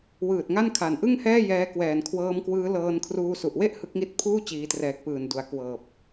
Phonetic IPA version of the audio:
w ɯː˨˩ t̚ ŋ a˥˩ n kʰ a˨˩ n ʔ ɯ˥˩ ŋ h ɛː˥˩ j ɛː˦˥ k w ɛː˨˩ n kʰ w ɤː˦˥ m k w ɯː˦˥ l ɤː˧ n kʰ r uː˧ s u˨˩ ʔ w e˥˩ ʔ h ɯ˦˥ k̚ ŋ i˦˥ t̚ pʰ uː˥˩ t͡ɕ iː˩˦ t r ɛː˨˩ k̚ p ɯː˨˩ n d u˩˦ a̯ k w ɤː˨˩ p̚

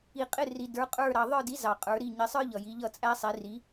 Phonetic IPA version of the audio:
i˨ qʼ ɪ˥˨ r i˨ d ə˞˨˥ qʼ ə˞˥˨ ɾ ɑ˨ ðˤ ə˞˥˨ d i˨˥ z ɑ˨ qʼ ə˞˨˥ ɾ i˥˨ ɲ ɪ˨˥ sˤ ə˞˥ ʎ ʌ˨ j i˨˥ ʎ ʌ˥˨ t͡sʼ æ˥ sˤ i˨˥ r i˨˥

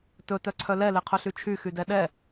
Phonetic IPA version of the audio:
t ɵ t œ ǀʰ œ l ɛ l e qʰ ɵ ɬ y t͡ʃʰ y x y d ɛ ɗ ɛ

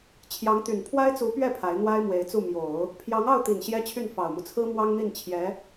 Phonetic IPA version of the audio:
t͡ɕʰ j ɑ˧˥ ŋ t̪ y˨˩ n pʰ w a˥ ɪ̯ t͡s u˧˥ p ɥ ɛ˥˩ pʰ a˧˥ ɪ̯ n̪ w a˥ ɪ̯ m w e˧˥ ɪ̯ t͡s u˥˩ m j o˨˩˦ ʊ̯ | pʰ j ɑ˧˥ ŋ ɑ˥˩ ʊ̯ t̪ i˨˩ n ɕ j ɛ˥ t͡ɕʰ y˥˩ n f ɑ˨˩ ʊ̯ m u˦ t͡sʰ ɹ̩˥ m w ɑ˥ ŋ n̪ i˥˩ n t͡ɕʰ j ɛ˧˥

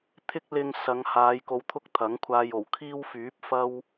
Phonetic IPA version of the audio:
t̪ʰ ɪ˥ k̚ l ɪ˧ ŋ s ɐ˨˧ ŋ h aː˨˧ j k o˧ w t̪ʰ ʊ˥ k̚ t̪ʰ ɐ˨˥ ŋ kʷʰ aː˧ j o˨˩ w kʰ iː˥ w f yː˨˥ p̚ f ɐ˥ w

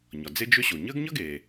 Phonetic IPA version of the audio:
ɲ ɒ˩ d͡z e˥ d͡ʒ ʏ˥ ɕ o˩ ɲ əː˥ ɡ ɲ ʌ˥ ɡ eː˩

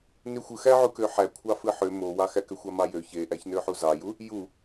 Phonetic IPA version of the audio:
n y xʷ ɯ x æ ʕ u k ø ħ æ kʷʰ ɑ f ɯ ħ ø m o w ɑ x æ k ø xʷ ɑ m ɑ j ø ç e ʔ æ ç n ø ħ u z ɑ j u | j u

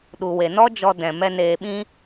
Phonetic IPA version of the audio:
ɗ u˨ w e˨ n ɔ˦ d͡ʒ ɔ˧ d ɛ̃˨ m ɛ˧ n eː˨ ɓ ĩ˧

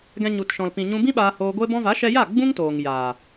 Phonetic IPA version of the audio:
ɡ ɛ̃˧ ɲ u˧ t ʃ ɔ̃˨ l p ĩ˨ ɲ ũ˧ b ĩ˦ ɓ aː˧ h oː˧ ɡʷ e˦ b ɔ̃˦ v a˨˦ ʃ ɛ˧ j a˦˨ ɡ͡b ũ˦ ŋ t oː˨ ŋ j aː˨

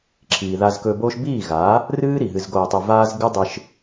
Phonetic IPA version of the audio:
ǁʰ iː˨ ð a˧ z k ɵ˧ b oː˦ ʃ b iː˦˨ ɣ aː˨˦ | r ɨː˦ ɾ i˨ ɦ ɨ˧ z ɡ oː˧ tˤ ɵ˧ v aː˦ z ɡ ɨ˦ dˤ ɨ˧ ʃ

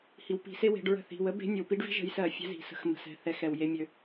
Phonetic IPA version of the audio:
h i˩˧ w p i̤˩˧ s e˥ w e̤˩˧ ɖ ɹ ə̤˧˩ θ i̤˩˧˩ w ə˧˥ b e̤˧˥ nʲ ə˩˧ w p i˧˥ ɖ v i̤˥ ʒ ə̤˧˥ j s ɜ˧˩˧ fʲ ɛ̤˧˥ z i̤˩˧ s ə̤˧˥ x m ə̤˩˧ s ɛ̤˩˧˩ θ ɛ˥ x ɛ˧˩˧ w j e˧˥ mʲ ø˩˧

